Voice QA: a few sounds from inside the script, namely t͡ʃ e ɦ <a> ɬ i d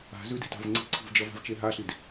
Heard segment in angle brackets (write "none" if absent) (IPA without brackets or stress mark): a